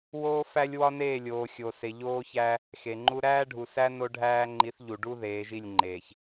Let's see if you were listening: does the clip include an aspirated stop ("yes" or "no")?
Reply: no